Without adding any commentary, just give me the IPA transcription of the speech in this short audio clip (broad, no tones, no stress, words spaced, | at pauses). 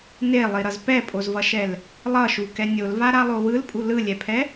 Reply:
nelˠiɾʌz pɛpʼozvʌʃɛl | lˠʌʃukɛ nʲolvaɾalˠo wɯlpʼu lɯlʲɛpʰɛ